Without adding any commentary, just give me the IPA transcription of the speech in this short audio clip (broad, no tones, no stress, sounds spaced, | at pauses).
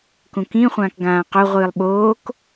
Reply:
k ũ k ĩ χʷ ãː k ɡ ãː q o ʁʷ ɨː lˠ ɓ oː k